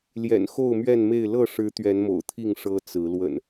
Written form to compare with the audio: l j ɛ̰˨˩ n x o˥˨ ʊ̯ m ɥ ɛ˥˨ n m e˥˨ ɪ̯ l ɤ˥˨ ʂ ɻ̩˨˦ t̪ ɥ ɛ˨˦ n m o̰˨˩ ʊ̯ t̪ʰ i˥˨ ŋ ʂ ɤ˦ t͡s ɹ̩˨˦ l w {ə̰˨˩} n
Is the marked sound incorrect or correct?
correct